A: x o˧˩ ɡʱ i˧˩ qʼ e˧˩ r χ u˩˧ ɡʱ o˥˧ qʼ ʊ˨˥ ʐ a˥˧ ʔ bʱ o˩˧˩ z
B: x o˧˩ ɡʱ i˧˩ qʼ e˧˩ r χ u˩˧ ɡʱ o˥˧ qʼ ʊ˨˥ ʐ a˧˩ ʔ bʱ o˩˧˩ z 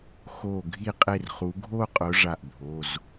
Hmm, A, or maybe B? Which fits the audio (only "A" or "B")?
B